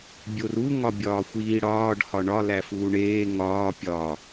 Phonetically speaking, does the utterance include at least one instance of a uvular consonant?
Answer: no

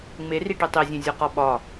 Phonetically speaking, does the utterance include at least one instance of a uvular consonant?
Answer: yes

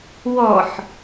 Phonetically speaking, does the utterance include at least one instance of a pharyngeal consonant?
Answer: yes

